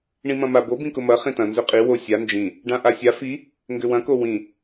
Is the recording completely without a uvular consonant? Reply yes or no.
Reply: no